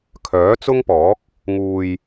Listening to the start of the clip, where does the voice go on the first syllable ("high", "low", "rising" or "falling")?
rising